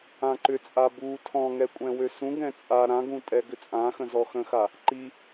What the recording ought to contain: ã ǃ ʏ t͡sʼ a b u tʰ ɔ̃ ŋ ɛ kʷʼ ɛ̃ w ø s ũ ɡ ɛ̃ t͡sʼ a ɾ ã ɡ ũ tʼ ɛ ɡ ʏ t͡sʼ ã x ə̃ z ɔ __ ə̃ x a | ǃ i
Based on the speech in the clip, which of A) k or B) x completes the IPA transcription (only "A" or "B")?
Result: B